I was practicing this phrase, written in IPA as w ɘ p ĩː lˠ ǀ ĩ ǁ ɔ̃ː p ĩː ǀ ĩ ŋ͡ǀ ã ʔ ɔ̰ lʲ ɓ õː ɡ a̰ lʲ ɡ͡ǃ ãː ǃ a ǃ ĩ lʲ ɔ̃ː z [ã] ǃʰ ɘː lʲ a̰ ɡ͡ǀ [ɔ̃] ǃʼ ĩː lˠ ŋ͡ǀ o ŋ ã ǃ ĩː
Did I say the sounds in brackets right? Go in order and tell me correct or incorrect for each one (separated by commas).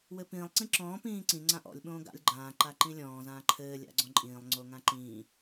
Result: incorrect, correct